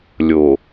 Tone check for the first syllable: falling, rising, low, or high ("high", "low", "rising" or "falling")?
low